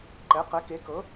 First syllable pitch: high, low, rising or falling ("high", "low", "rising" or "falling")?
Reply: rising